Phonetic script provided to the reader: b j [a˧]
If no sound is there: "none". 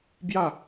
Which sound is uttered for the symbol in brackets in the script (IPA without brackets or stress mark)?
a˥˧